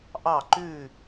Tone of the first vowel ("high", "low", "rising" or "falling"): falling